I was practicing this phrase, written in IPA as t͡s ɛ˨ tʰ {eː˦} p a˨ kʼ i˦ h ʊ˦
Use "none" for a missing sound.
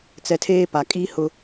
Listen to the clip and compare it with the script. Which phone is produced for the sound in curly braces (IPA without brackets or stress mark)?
eː˦